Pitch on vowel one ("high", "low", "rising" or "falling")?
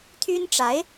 high